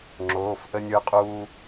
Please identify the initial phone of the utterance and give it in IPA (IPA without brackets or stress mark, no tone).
ŋ͡ǁ